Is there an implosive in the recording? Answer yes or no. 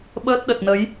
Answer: yes